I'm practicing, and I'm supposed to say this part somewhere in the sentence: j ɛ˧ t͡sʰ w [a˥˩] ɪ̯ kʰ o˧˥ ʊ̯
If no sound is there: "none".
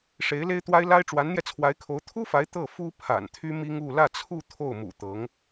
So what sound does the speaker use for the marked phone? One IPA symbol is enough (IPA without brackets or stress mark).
a˧˥